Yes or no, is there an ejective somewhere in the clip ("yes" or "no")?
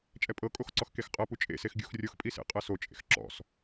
yes